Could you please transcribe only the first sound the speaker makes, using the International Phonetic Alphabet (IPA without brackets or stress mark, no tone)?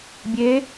bʲ